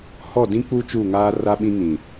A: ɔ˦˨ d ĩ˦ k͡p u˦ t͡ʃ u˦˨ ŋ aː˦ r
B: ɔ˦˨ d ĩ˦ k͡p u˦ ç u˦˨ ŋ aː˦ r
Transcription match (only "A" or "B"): A